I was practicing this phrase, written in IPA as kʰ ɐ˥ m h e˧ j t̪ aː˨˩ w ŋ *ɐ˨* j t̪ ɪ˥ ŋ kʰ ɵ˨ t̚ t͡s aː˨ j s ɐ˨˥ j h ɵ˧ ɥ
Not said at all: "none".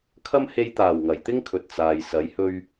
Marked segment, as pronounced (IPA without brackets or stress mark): ɐ˨˩